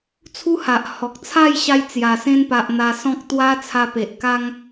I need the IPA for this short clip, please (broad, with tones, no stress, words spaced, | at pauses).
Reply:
t͡sʰu˦ha˨ʔ hɔ˨k̚t͡sʰa˥˧jɕa˧j t͡sja˨˩sẽ˧npa˨ʔ n̪a˧sɔ̃˦k̚ t̪wa˦t͡sʰa˧pe˨ʔ ka˦ŋ